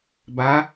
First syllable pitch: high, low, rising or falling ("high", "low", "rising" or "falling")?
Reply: rising